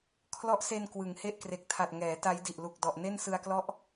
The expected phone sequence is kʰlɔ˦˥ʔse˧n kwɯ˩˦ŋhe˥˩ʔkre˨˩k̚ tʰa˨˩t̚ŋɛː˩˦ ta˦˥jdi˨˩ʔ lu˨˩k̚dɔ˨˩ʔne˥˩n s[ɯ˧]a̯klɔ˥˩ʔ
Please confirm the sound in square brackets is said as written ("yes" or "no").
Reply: yes